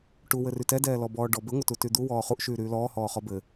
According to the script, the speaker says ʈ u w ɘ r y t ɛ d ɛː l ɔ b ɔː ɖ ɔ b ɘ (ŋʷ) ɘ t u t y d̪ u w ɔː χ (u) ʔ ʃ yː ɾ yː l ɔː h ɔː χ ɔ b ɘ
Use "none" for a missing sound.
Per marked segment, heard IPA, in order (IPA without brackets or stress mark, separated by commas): ŋʷ, u